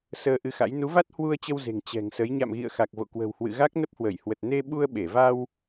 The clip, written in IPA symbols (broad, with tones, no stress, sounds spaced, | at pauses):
s əː˧ ʔ ɨ˧ x a̰˧˥ j n u˨˦ v a˦˥ t̚ h w u˧ ə̯ t͡ɕ ə˧ w z e̤˨˩ ŋ t͡ɕ ɛ̤˨˩ ŋ s ə˨˦ j ɲ a̰˧˨ m ɣ ḭ˧˨ ə̯ x a˨˩ k̚ v o̰˧˨ k w ə̤˨˩ w h w ɨ̰˧˨ ɣ a˦˥ k̚ n ə˦˥ p̚ h w ə˧˩ j h w ə˨˩ t̚ n e˧ ɓ u˧ ə̯ ɓ e˧˩ v a˧ w